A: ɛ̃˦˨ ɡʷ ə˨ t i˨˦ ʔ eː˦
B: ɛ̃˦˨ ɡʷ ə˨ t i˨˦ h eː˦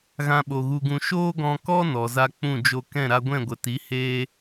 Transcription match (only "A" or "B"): B